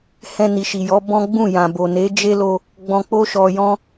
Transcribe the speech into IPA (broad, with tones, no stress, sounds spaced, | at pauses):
h ɛ̃˧ n i˨ ʃ i˨ j ɔ˨˦ b ɔ̃˦ ɡ͡b ũ˦˨ j ã˨ b o˨ n e˨˦ d͡ʒ e˦ l o˧ | ɡ͡b ɔ̃˧ k͡p o˦ ʃ ɔ˧ j ɔ̃˦